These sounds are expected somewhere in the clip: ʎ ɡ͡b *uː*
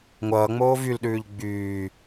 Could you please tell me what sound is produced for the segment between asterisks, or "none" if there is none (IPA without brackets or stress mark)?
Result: yː